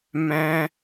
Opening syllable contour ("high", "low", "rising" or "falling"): high